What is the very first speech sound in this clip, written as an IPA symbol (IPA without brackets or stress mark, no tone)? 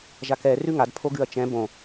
ʒ